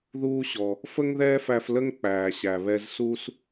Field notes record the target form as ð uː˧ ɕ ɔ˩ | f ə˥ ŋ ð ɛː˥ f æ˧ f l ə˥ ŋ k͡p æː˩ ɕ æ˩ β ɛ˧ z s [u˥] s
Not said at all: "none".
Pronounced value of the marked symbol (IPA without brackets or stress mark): u˥